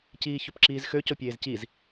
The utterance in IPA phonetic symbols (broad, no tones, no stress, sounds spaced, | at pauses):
c iː ç ɵ p ǁ iː z x ø c o pʲ eː z c i z